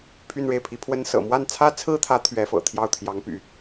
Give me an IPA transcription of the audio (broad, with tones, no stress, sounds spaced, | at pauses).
pʰ y˥˧ n ɻ e˥˩ ɪ̯ pʰ i˧˥ pʰ w ə˥ n s ɤ̰˨˩ m w a˥˩ n t͡sʰ ä˥ t͡sʰ ɹ̩˥ t̪ʰ ä˧˥ t̪ʰ ɥ ɛ˧˥ f ɤ̰˨˩ t̪ʰ j ɑ˥˩ ʊ̯ t̪ʰ j ɑ˧˥ ŋ p y̰˨˩˦